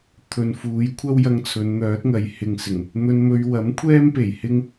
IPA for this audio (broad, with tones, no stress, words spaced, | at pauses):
t̪ʰɵ˨nfuː˨˧j kʷʰɐ˥wjɐ˧ŋt͡sʰɵ˨˧n n̪œː˨˥t̚ŋɐ˨j hɪ˨ŋsɪ˨˩ŋ | n̪ɵ˧nmɵ˧ɥ wɐ˨˥mkʷʰɛː˥mpe˨˩j hɪ˥ŋ